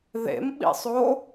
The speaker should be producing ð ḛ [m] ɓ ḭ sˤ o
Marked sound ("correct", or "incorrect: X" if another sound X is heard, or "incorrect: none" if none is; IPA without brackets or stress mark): correct